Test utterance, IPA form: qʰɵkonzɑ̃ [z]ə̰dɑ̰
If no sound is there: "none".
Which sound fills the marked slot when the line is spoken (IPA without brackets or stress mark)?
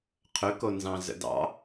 z